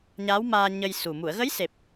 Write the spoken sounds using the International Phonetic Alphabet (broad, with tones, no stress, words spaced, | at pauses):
ɲa˧˥wmaː˧ ɲə˧jsu˨˩ mu˨˩˨ə̯ɣə˧˥jse˨˩p̚